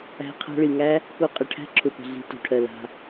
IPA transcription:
æ̤˧ qʰa̤˧ɭi˨ŋæ˦ | ko˨˦ qʼə˨ʈʰæ̤˦ ǁʰʊ˨pə̤˨ɮi̤˨ to̤˨ʈʰɜ˨ la̤˧

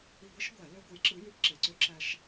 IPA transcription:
i˧˩˧ɡʷi˨˥ʃ ɡʷæ˧˩˧ lø˧ ɡʷɯ˨˥jǁɯ˨˥ jy˧˩˧pǁe˩ǀø˨˥ ǁæ˧ʃ

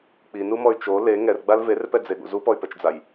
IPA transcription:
k͡pinumɔy̯ t͡ʃo le ŋɛrɡ͡bal verpɛd͡zeɠṵ zupɔy̯pɛt͡ʃd͡zaj

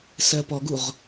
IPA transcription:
sɜpɔɡuʁ

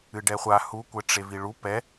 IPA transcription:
ɨɖɛχʷa hu kʷɘʈ͡ʂeviɭu pɛ

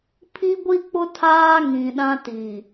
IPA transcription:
pʰi˦ɡʷi˦k͡pʊ˦ tʰaː˦ŋĩ˨ ɗã˦tiː˨

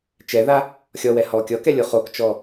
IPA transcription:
t͡ʃɛða | xʲɔwɛ hɔ kʲɔkɛlʲo χokt͡ʃɔ

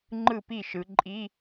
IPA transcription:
ŋ͡ǃɯ˥˨pi˥˨ʃɯ˨˦ ǃʼi˧˥˧

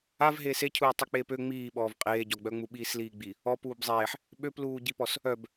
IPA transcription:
av ɦeːsecʰuː tˤyk͡peːpø ŋ͡miːɓɔːv qʼeːɟɔɡ͡bœŋ͡mu ɓiːsliːɡ͡bi | ɔp uːbzˤeːħ | ɓøpluːɟipɔs | œb

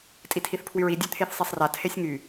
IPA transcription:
tʼitʰiθpʰwyɹi dʲet̪ʰeθsˤesˤra tʰesʲŋy

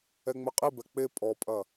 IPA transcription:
ɛŋ͡mɘqʼibɛ k͡pe pʼɔpʼɐ

